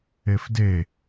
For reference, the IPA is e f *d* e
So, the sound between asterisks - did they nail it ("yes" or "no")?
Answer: yes